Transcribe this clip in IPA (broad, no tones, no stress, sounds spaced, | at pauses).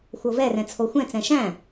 xʷ ɤ v ɛ r ɛ̃ t͡sʰ o xʷ ɛ̃ t͡s ɛ̃ ʃ æ̃